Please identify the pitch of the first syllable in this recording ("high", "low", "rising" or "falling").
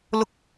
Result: high